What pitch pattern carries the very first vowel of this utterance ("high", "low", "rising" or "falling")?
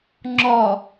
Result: low